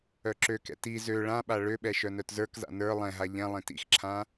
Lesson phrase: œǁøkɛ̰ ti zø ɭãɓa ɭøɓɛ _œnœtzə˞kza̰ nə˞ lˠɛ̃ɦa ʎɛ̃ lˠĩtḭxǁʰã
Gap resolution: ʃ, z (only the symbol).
ʃ